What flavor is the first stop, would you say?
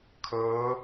aspirated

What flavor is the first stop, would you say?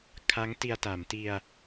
aspirated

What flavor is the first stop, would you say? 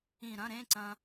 click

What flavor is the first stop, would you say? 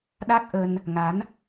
implosive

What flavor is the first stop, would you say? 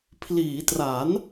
aspirated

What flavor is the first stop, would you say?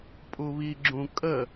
ejective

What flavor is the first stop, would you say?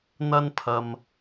aspirated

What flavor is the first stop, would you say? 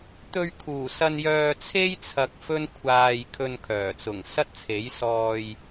plain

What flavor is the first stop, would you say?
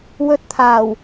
plain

